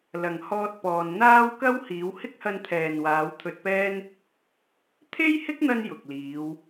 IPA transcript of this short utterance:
lɐ˨˩ŋ hɔː˥t̚pɔː˧n n̪aː˥wkɐ˥w hiː˨˧whɪ˥k̚hɐ˧nt̪ʰɛː˨n waː˨˧wt̪ʰɵ˧t̚pɛː˥n | t̪ʰe˥jhɪ˥k̚n̪ɐ˧n jʊ˨k̚liː˨˧w

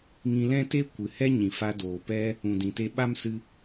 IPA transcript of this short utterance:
ŋĩ˧lɛ̃˦ te˦kʷɨ˨hɛ˦ ɲĩ˨fa˧doː˨pɛ˦ | ũ˨dĩ˨te˧ɓa˦m sɨ˦

